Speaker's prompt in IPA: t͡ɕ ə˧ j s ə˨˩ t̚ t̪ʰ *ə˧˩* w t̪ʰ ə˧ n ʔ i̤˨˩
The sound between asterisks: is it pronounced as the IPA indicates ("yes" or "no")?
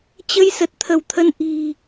yes